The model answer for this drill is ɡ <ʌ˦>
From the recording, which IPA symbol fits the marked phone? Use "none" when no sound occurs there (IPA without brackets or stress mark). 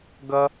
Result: ʌ˦